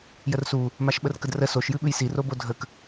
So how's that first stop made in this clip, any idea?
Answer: implosive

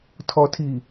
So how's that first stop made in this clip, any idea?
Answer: aspirated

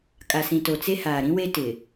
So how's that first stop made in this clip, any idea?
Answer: ejective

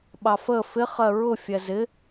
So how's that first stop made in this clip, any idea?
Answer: implosive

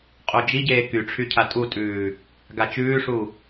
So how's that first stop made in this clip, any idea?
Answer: ejective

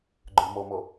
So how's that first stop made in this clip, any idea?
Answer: click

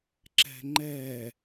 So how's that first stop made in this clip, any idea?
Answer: click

